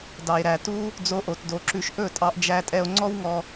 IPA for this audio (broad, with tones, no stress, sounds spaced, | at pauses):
d ɑ˨ e̯ ɾ æ˨ t u˦ | d͡z o˧ ʔ o˨ t d o˧ ǁ ʉ˧ ʃ ʔ ɵ˦˨ tʼ ɑ˧ ʔ d͡ʒ æ˧ tʼ ɛ˧ o̯ ŋ͡ǀ ɔ˦ w ŋ ɔ˧